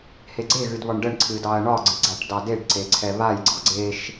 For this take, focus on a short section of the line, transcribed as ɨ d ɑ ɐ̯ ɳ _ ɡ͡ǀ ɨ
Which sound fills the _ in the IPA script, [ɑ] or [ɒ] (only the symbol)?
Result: ɒ